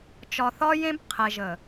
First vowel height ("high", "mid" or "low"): low